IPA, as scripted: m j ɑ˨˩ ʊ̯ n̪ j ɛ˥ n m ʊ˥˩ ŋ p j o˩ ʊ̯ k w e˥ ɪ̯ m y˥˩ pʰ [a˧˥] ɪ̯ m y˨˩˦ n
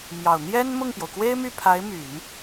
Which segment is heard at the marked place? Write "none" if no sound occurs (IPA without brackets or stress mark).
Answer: a˧˥